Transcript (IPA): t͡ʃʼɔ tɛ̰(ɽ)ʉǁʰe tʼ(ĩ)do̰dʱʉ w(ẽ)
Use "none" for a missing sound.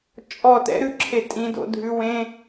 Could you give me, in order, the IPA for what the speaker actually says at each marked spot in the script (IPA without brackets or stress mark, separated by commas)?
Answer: ɾ, ĩ, ẽ